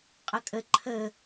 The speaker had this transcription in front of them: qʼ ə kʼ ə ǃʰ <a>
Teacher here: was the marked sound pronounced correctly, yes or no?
no